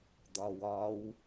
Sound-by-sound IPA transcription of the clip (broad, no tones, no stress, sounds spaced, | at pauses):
d̪ ɒ w ɒ w